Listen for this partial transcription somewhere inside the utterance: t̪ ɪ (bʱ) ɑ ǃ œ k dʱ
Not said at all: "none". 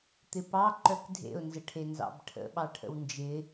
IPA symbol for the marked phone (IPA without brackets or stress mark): p